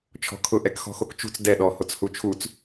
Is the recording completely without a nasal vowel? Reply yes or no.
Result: yes